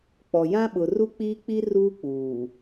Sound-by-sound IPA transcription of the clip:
k͡p ɔ˨ j ã˦ ɓ ʊ˨ r u˦ k͡p iː˦ k͡p i˦ r uː˦ k͡p uː˨

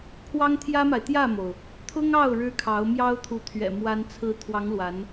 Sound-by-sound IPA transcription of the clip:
pʰ w ɑ˥ ŋ t̪ʰ j ä˥ m a˨ ɪ̯ t̪ j ä˥˩ m o˩ ʊ̯ | t̪ʰ ʊ˥ ŋ ɑ˥˩ ʊ̯ ɻ ɻ̩˥ kʰ ɑ˧˥ ʊ̯ m j ɑ˥ ʊ̯ t̪ʰ u˧˥ t̪ʰ ɥ ɛ̰˨˩ m w a˥ n t͡sʰ ɹ̩˧˥ t̪ʰ w ɑ˧˥ ŋ l w a˧˥ n

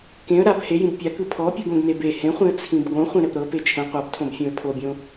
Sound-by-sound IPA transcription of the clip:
k ẽ ə̯ ɾ a b h e j ĩ b pʲ a k ɯ pʰ ɔ pʲ ɯ ɡ õ ɡ n e b e h ẽ χʷ ĩ ə̯ t͡sʰ ĩ b ɡ õ χʷ ĩ ɾ ɛ p ɾ ɤ p e t͡ʃʰ ɛ̃ qʷ a b tʰ õ b fʲ õ ə̯ pʰ o bʲ õ

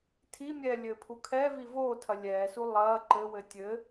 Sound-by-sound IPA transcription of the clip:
tʰ i mʲ ɛː lʲ ɘː pʰ u kʰ ɛː v i v oː tʰ ɐ lʲ ɛː s u lˠ ɐː ǃ ɘ w ɘ tʲ ɘ

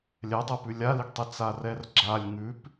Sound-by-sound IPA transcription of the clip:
lʲ ɛ dˤ ɛ p ʉ lʲ a l i ɡ tˤ i t͡s a r ɛ r ɡ͡ǁ a lʲ ŋ ʉ p

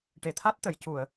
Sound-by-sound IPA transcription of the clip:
ʈ e˨˩ t̪ʰ a˦˥ t̚ t̪ ə˨˩˨ j c u˨˩˨ ə̯

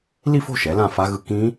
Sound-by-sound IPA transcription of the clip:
l i˥˧ f o̤˥˧ ʃ ɛ˩˥ l ã˥˧ f a˦˥ ɣ ɯ˦˥ k ĩ˦˥

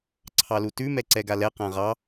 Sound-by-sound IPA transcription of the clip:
ǀʰ ɑ l u t ʉ m ɛ ǀ ɛ ɡ a l ɛ q ã ʁ ɑ

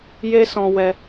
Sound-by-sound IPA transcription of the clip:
j e˦ s ɔ̃˧ w ɛ˧

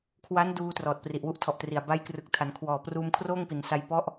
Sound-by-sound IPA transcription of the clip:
kʰ w a˦˥ n d uː˧ t r ɔː˨˩ t̚ p r i˨˩ ʔ w u˦˥ ʔ tʰ ɔ˨˩ ʔ t r i˨˩ a̯ b a˦˥ j k r ɯ˨˩ k̚ tʰ a˩˦ n kʰ w ɔː˨˩ p r uː˧ m kʰ r oː˥˩ ŋ p i˩˦ n s a˦˥ j p ɔ˦˥ ʔ

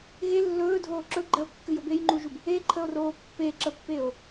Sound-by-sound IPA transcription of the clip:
ɣ e lː ɵː dʱ oː ǁ ɵ ɡ͡ǃ ɜ o̯ kː ɨ j o b e j ŋ͡ǃ u ʒ u b | e ǃʰ ə o̯ r oː pː e ǁ ə pː e o̯

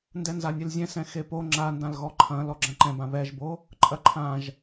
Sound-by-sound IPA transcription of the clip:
n d ɛ n z a nʲ e l zʲ ɛ̃ s ɛ̃ x e p o ŋ͡ǁ a n d ã l ɣ ɔ ǃʰ ɐ̃ l ɔ ɡ͡ǁ ɐ̃ ǃ ɛ̃ b ã β ɛ ʒ b o | ǃʼ ɐ ǃʰ ã ʒ

